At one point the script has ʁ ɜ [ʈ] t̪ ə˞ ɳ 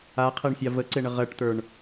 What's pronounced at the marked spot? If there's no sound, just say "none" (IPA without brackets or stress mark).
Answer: ʈ